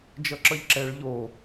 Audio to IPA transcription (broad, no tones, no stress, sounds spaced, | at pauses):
d͡ʒ ʌ ǁ ʌ ʎ ǁ ɛ ɭ ʎ o